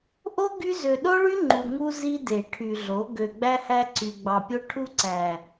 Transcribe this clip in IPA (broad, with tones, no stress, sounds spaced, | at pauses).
ʔ o˦ ɡ y˦ z ø˨ ɗ o˦ ɭ y˦ ŋ͡ǃ u˨ ŋ u˦ z i˦ d e˨ ʈʰ y˨ ɮ o˨˦ ɡ ø˨ ɡ͡b æ˦ h æ˦ ǀ y˨ ɡ͡b ɑ˨ pʲ o˦ ʈʰ u˦ ǀ æ˨